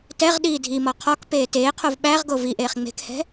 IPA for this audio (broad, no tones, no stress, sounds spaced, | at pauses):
t ɛ ʁ ɗ iː dʱ i m ɔ qʰ ɔ k p eː t eː qʰ o v ɓ æ ʁ ɡ o v i ʔ eː χ ŋ͡m e̤ k h ɛ̤